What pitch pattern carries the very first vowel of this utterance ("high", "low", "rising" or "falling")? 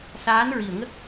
rising